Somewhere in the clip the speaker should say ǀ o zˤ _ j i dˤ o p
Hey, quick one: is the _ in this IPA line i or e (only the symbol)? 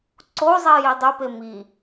i